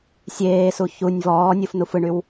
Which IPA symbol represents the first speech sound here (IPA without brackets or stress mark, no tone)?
sʲ